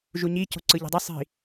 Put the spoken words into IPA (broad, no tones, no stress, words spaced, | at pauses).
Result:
ʒuɲi co̤ǀɯʎe̤dˤɯ sˤi̤